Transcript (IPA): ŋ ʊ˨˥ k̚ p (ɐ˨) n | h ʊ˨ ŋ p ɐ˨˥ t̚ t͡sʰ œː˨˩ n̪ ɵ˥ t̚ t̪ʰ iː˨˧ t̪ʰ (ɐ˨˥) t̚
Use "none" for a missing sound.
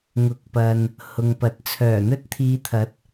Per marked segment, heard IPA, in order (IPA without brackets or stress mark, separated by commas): ɐ˨, ɐ˨˥